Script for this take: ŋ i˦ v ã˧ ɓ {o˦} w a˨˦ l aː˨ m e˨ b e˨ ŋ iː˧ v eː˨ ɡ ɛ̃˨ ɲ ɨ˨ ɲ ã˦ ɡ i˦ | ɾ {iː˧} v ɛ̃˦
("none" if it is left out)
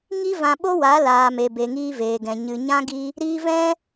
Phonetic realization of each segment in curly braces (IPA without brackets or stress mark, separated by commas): o˦, iː˧